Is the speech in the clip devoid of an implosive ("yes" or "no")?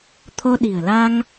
no